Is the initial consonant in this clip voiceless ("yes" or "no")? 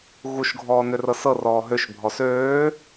no